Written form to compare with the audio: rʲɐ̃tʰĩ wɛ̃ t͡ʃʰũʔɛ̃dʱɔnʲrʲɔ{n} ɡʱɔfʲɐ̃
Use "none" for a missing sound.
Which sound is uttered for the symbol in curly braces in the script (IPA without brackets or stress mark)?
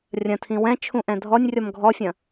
m